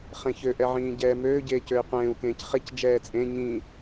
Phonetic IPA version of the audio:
χ ẽ ç ø ʔ ɛ ʕ ĩː ɟ ɛː m øː ɟ eː c ø i̯ qʷ ẽː u̯ k ẽː c χ e c d͡ʒ ɛː t͡sʼ ẽ ɲ ĩ

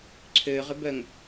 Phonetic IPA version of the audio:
ǀʰ øː ʁ ʏ b œ ŋ

